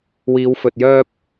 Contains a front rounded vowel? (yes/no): yes